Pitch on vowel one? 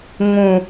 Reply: low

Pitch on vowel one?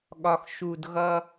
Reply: low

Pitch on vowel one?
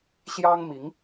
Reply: high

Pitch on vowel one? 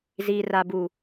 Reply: high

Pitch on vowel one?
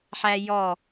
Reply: high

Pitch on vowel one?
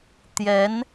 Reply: rising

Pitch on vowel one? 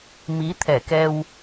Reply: rising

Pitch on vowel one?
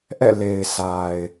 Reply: falling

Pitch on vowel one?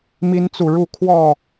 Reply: high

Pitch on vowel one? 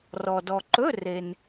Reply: low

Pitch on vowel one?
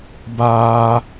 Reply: high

